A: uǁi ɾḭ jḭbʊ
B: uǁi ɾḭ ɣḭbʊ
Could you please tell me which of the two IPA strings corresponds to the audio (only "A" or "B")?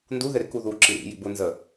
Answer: A